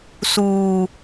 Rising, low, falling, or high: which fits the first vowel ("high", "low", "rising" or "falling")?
low